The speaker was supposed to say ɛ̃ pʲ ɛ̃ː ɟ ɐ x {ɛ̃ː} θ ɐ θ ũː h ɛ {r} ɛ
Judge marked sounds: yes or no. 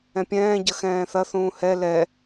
yes, no

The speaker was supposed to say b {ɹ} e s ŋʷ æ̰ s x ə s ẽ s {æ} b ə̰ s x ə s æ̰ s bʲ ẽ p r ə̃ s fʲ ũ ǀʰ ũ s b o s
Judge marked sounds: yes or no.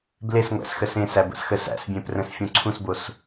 no, yes

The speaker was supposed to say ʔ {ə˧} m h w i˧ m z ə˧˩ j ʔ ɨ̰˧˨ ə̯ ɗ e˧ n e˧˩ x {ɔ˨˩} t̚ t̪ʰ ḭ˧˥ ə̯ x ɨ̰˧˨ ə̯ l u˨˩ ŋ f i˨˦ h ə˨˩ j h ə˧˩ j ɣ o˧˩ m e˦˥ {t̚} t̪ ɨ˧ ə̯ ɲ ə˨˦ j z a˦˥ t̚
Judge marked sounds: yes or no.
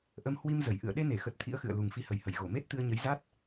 yes, no, yes

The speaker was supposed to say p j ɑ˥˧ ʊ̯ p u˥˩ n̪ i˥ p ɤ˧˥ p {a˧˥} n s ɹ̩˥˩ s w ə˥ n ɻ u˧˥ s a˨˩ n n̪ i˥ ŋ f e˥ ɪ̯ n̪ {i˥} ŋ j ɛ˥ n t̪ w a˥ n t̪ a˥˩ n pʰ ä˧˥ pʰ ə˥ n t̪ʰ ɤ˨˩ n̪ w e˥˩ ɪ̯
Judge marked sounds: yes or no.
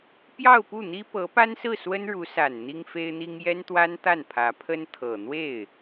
no, yes

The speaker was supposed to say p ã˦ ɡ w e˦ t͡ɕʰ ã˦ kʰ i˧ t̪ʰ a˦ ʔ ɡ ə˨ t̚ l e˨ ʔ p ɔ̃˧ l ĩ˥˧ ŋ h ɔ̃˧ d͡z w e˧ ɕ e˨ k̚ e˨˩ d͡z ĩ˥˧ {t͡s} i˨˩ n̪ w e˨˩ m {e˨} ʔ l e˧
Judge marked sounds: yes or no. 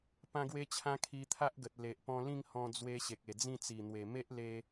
yes, no

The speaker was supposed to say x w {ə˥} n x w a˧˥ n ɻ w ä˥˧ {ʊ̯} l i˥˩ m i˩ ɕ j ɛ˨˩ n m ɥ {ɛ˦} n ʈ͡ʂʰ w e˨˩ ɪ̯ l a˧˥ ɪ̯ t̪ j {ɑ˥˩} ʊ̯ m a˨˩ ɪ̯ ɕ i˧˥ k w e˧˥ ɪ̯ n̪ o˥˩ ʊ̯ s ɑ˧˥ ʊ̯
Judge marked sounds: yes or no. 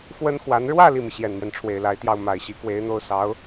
yes, no, yes, yes

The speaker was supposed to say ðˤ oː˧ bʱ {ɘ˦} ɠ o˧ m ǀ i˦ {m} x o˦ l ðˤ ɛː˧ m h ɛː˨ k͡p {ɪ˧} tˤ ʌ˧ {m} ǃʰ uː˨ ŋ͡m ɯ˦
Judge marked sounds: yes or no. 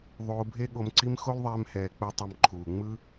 no, yes, no, yes

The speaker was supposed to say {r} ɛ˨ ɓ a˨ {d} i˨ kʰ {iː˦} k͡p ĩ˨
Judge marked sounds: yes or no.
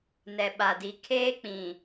no, yes, no

